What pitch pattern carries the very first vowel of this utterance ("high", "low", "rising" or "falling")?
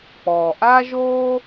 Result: low